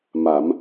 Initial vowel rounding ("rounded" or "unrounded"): unrounded